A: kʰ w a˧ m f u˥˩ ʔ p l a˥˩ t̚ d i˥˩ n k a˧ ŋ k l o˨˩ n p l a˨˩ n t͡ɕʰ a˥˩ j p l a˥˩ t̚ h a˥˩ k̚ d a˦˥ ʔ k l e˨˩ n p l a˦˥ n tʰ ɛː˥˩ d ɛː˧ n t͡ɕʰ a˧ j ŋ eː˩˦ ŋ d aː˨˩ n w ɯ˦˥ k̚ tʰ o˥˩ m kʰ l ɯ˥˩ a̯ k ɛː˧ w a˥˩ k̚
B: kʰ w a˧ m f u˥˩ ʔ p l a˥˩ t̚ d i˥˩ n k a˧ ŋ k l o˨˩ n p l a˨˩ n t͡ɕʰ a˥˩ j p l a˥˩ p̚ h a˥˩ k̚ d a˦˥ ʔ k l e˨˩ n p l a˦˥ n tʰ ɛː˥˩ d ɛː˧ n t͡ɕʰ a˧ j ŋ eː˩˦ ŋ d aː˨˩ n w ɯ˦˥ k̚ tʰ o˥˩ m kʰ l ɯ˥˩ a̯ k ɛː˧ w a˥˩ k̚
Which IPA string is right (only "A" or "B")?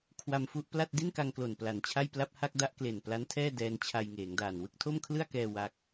B